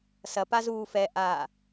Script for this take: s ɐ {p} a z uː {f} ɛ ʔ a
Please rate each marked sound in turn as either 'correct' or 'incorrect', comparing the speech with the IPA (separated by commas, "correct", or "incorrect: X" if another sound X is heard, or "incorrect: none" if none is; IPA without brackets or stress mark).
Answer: correct, correct